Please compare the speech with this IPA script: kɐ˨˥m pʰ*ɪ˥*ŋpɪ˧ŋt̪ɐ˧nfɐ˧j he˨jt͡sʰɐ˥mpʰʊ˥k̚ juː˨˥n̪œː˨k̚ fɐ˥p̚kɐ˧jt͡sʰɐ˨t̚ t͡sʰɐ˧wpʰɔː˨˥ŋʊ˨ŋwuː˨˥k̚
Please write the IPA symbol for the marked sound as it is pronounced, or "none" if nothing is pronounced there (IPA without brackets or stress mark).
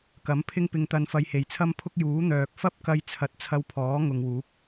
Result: ɪ˥